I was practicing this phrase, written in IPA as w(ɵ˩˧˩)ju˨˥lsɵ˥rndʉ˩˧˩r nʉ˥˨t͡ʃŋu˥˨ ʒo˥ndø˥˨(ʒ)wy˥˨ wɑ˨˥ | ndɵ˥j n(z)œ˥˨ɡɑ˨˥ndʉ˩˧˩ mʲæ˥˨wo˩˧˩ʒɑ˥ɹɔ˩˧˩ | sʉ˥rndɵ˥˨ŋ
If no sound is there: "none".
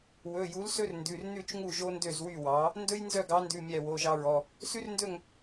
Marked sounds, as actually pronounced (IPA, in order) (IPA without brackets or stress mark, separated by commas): ɵ˩˧˩, z, z